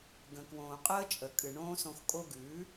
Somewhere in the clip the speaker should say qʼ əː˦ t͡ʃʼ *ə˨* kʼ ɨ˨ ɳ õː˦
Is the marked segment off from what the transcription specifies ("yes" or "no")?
no